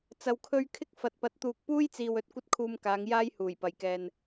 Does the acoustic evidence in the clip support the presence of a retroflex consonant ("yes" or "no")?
no